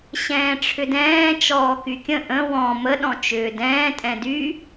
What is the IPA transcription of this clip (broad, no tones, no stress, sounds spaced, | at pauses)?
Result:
ɕ ɛ̃ː ʈ͡ʂʰ ʏ d ɛ̃ː t͡ʃ ɔː k y kʲ ə̃ ʔ ə̃ w ɔ̃ m ə ɗ ɔ̃ t͡ʃ ʏː d ɛ̃ː tʼ ɛ̃ d y